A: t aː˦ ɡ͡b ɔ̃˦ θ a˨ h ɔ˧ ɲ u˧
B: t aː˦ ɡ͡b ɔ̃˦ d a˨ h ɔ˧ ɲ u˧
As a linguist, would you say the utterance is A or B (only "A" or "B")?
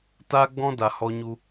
B